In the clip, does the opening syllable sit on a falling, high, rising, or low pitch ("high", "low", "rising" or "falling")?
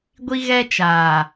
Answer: high